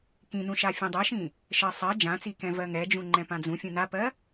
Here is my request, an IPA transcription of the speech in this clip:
kĩnũʃa fʲũdˤɜʃĩ | ʃɜsˤɜ d͡ʒãt͡sikɛ̃ vɜŋɛd͡ʒũŋ͡ǃɛ̃ pãd͡zũfʲũ napɜ

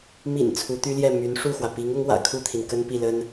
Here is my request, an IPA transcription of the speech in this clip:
mḭ˨˩n t͡sʰu˧˥t̪y˥ljɛ˥˩ my˧˥nʂu˥˩xwä˩ pi˧˥ŋʊ˧˥ŋwä̰˨˩ kʰu˥˩t̪ʰi˩n kə˥npi˥˩lə˥n

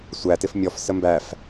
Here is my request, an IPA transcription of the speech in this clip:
sʷæ tɪfmʲɔf səmbæf

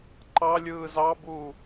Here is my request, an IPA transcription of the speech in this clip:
ǃɑlʲɯː zɑbuː

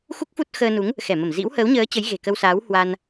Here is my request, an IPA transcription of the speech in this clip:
xu˦˥k̚fu˦˥t̚ xəː˧nu˨˦ŋ | xɛ˧˩mə˧˩mzḭ˧˥w həː˨˦wɲəː˨˦ t͡ɕə˨˦jɣe̤˨˩kə˧wsaː˨˦w hwa˧n

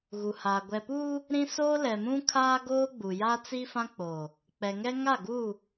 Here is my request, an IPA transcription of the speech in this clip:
ɣu˨haː˨ ɡʷɛ˨puː˦ | ɾĩ˦ soː˦lɛ˨mũ˦ kʰaː˦ɡoː˦ɡ͡bu˨ja˦ t͡si˦fã˦k͡poː˨ | k͡pɛ˨ŋɛ˦ŋa˦˨ɡu˦˨

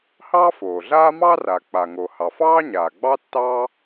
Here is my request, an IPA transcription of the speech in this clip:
hɑː˥foː˩ɮaː˥ mɑ˥ra˩ k͡pa˩ŋo˩ hɑ˩fɑː˥ɲaː˩ɡ͡bɑ˥ tːɑː˥

